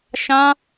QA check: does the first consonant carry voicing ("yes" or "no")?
no